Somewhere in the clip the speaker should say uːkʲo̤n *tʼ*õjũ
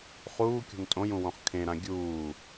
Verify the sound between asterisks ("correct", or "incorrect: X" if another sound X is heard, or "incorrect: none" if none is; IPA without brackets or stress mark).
correct